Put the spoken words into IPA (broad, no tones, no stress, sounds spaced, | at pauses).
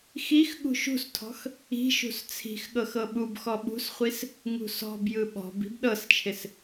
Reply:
x i x ɠ ṳ ʃ ṳ s tʰ ɔ̤ x | i̤ ʃ ṳ s t͡sʰ i̤ x ɠ ɤ x ɤ ɓ u b x ɔ ɓ ṳ s χʷ i s | ŋ ṳ s ɔ̤ b j ɯ ɓ ɔ̤ b i̤ b ɗ ɤ s t͡ʃʰ ɪ s